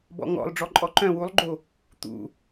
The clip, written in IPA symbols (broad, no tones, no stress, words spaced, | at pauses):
bɔ̰ŋɔ̰lˠ ɖ͡ʐɔǃʼɔǃœ̃ wulˠɡ͡ǃo | t̪ṵ